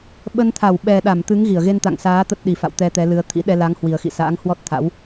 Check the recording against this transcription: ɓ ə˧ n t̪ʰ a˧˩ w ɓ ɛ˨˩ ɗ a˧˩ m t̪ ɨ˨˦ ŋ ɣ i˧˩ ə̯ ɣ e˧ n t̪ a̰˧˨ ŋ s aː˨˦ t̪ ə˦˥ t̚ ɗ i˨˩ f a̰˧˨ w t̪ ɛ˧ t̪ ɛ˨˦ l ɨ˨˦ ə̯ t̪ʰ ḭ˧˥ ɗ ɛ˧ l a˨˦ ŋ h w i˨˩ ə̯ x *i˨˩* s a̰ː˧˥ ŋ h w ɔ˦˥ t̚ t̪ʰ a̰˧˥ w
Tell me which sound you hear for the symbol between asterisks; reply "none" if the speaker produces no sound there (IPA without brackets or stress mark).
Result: ḭ˧˨